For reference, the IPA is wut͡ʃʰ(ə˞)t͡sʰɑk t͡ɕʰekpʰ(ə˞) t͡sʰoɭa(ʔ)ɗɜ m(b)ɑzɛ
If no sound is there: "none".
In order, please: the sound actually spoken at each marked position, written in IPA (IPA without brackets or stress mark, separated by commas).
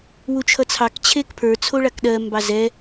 ʌ, ə˞, k, b